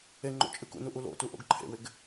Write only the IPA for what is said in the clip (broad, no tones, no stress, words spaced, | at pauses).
eŋ͡ǃo̰ t͡ʃʼɨkṵnu ʔulo̰tu ʔo̰ɡǃʰḛwɪɡ